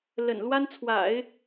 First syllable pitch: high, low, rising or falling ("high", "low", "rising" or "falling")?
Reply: low